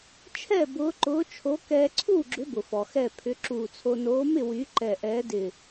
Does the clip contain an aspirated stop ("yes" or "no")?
yes